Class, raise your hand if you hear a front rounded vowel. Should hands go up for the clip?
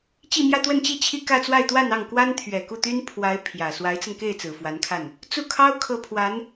yes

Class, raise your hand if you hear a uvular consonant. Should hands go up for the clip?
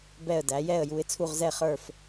yes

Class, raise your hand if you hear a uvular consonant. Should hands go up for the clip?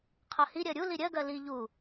yes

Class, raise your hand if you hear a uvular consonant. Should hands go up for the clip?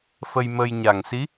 no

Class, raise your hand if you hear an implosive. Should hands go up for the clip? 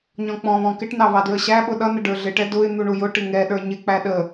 yes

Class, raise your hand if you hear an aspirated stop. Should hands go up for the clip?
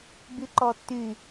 no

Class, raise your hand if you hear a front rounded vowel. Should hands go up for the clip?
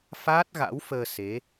no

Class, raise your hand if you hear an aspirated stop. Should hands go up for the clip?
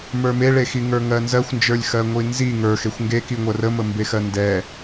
no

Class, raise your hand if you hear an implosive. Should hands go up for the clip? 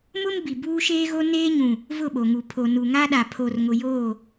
yes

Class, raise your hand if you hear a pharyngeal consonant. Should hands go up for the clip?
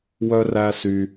no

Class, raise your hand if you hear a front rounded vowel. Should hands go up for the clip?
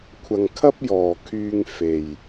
yes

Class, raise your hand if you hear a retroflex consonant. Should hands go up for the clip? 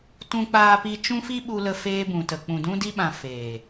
no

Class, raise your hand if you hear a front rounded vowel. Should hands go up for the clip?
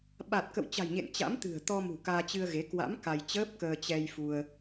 no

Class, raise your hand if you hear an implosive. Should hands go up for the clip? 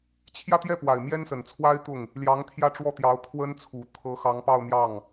no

